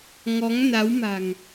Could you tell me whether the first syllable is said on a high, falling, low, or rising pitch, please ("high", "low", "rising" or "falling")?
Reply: rising